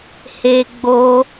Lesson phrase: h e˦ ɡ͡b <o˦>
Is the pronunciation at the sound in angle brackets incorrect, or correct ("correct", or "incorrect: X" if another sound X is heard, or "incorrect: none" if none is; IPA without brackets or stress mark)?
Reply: correct